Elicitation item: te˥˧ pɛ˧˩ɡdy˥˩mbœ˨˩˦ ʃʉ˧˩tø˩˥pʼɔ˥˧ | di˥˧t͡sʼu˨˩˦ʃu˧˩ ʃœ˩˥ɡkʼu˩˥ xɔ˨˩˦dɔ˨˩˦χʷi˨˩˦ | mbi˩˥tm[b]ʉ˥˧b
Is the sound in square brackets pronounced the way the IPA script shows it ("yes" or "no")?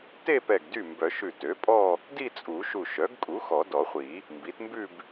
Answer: yes